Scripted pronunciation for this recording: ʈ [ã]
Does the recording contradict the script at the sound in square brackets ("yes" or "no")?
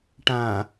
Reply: no